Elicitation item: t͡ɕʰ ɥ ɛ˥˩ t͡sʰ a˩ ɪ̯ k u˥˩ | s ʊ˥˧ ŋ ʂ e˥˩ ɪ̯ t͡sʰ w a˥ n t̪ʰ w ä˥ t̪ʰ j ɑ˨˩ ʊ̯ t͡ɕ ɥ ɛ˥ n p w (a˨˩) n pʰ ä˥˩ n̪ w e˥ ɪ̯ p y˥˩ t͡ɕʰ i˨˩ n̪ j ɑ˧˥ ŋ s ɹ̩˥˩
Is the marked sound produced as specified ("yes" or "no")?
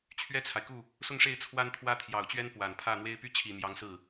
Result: yes